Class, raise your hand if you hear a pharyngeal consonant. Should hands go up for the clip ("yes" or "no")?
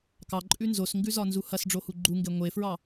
no